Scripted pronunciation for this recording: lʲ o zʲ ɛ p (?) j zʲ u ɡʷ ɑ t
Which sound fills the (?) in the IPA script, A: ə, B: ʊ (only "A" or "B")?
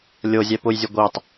B